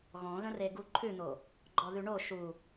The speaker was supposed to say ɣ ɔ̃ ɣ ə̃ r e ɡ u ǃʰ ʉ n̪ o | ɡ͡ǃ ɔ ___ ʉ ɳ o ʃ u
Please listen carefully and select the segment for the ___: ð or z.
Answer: ð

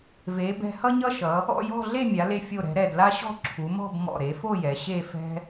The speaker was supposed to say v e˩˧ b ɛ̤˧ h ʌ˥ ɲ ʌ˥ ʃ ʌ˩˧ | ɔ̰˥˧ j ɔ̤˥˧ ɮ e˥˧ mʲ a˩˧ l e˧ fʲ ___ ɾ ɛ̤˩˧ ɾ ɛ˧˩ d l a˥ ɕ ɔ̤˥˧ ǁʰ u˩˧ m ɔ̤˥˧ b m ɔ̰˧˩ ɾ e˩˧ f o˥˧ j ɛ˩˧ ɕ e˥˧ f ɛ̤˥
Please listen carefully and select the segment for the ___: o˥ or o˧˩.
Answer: o˧˩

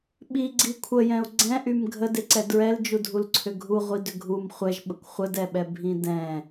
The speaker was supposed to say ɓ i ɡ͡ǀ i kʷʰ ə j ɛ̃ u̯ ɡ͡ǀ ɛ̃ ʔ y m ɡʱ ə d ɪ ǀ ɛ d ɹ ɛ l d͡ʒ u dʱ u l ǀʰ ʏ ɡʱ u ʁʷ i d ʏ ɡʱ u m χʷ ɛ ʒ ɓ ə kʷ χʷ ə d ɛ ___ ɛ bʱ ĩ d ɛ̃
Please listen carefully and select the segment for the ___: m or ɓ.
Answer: ɓ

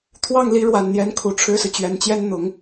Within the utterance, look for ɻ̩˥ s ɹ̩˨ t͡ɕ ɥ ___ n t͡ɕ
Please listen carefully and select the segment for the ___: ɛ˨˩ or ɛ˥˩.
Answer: ɛ˨˩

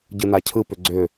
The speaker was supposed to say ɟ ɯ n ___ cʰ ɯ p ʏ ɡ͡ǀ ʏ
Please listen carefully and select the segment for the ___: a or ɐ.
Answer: a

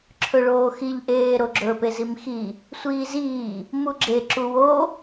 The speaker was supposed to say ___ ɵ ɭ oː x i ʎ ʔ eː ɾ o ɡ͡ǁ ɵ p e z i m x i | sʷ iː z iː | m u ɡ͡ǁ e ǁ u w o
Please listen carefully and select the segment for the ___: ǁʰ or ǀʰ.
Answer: ǁʰ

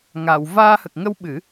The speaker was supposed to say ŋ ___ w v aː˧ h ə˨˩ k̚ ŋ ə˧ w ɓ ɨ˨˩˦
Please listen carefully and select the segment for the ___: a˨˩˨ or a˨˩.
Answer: a˨˩˨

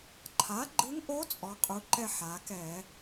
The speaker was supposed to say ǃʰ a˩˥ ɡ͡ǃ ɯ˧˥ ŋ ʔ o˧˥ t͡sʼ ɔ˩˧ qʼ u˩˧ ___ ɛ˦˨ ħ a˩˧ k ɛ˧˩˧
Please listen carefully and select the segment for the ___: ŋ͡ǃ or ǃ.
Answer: ǃ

